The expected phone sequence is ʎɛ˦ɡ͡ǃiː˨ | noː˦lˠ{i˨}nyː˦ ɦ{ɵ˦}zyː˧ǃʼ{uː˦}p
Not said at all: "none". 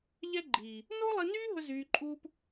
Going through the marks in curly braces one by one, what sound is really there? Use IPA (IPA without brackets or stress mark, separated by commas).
i˧, ɵ˦, uː˦